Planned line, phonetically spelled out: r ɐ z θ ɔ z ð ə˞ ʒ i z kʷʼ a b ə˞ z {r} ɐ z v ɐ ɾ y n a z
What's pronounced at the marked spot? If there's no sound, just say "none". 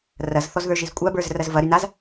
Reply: r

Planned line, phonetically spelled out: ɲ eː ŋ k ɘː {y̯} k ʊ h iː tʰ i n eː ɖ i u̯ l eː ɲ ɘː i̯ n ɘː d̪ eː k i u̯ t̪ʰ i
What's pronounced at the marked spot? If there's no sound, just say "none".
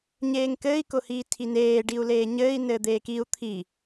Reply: i̯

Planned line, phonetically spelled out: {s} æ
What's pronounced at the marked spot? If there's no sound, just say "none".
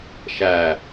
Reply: ʃ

